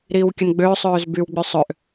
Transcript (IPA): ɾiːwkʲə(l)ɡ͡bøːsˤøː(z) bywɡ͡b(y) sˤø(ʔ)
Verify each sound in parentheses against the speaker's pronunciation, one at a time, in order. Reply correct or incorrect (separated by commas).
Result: incorrect, correct, correct, correct